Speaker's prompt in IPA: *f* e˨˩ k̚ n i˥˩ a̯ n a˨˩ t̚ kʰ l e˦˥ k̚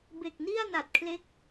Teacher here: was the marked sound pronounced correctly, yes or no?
no